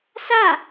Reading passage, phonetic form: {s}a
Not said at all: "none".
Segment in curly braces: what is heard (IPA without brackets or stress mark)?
s